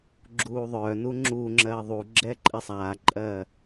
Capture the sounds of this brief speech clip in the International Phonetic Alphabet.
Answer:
ɡ͡ǁ uː ðˤ œː n u ŋ͡ǁ uː ŋ͡ǁ ɜː ðˤ u ɡ͡ǁ ɛː ǃʼ ɛ sˤ aː ǃʼ ɜː

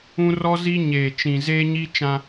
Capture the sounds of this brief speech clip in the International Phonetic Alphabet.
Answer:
ũ˦ r ɔ˦ z i˦ ɲ eː˨ t͡ʃ ĩ˨ z eː˦ ɲ i˦ t͡ʃ ã˦

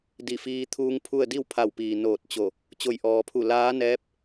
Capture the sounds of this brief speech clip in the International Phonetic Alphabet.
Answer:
d i˧˩ f iː˧ t̪ʰ uː˧ ŋ pʰ u˥˨ ə̯ d i˥˨ w pʰ a˧˩ w p iː˩ n oː˧˩ t̚ t͡ɕ o˧˩ | t͡ɕ o˧˩ j ʔ ɔː˩ pʰ u˧˩ l aː˧˥ n ɛː˧˥ p̚

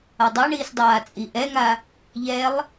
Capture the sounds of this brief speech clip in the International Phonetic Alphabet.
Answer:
a dˤ a ɳ iː s dˤ aː t͡sʼ i ʔ ɛ ŋ a | ʎ ɛ lˠ

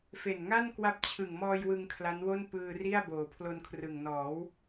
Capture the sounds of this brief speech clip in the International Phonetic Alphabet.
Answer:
f e˨˩ n ŋ a˥˩ n k w a˥˩ p̚ t͡ɕʰ ɯ˨˩ ŋ m ɔː˧ j w ɯ˧ ŋ kʰ l a˦˥ n w o˥˩ n p ɯː˧ r i˥˩ a̯ b oː˨˩ pʰ l o˧ n kʰ r ɯ˨˩ ŋ n ɔː˩˦ w

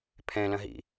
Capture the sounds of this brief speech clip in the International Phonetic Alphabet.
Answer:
pʰ ɛ̃ l ɐ̃ ɦ ḭ

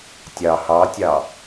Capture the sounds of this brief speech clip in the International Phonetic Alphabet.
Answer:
tʲ ɑ h ɑ tʲ ɑ

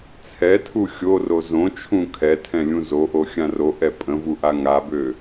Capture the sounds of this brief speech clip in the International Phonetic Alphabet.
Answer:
t͡sʰ ɛ tʰ u xʲ o r o z õ t͡ʃʰ ũ kʰ ɛ tʰ ɛ̃ lʲ ũ z o ʔ o xʲ ã r o ʔ ɛ pʼ ə̃ v u ʔ a ŋ a b ø

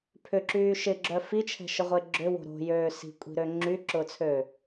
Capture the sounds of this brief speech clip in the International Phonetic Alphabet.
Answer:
pʰ ʏ ǁ yː ʃ ɪ ɡ͡ǁ œ f i t͡ʃʰ ɛ̤ ʃ ə ʁʷ e ɡ͡ǁ ʏ w o̤ ɾ o̤ j øː s i̤ kʷʼ i̤ ɾ ø ŋ͡ǁ y ǁ ʊː t͡sʰ øː

